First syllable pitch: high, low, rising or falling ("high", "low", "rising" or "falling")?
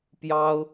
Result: high